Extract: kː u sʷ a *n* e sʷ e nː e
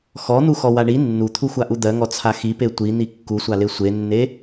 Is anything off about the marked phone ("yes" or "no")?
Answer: yes